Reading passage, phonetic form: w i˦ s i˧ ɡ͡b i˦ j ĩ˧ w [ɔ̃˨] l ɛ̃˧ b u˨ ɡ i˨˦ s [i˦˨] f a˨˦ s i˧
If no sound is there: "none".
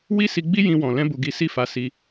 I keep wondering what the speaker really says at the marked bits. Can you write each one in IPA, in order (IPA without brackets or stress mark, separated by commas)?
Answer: ɔ̃˨, i˦˨